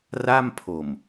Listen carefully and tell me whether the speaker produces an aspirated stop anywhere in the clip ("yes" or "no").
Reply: yes